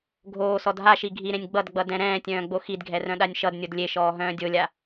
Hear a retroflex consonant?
no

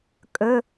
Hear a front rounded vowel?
no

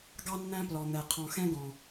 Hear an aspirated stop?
yes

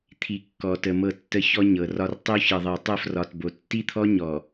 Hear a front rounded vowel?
no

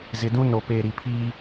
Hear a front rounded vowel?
no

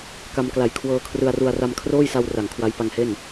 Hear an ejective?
no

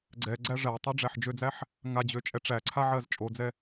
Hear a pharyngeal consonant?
yes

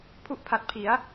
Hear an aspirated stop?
yes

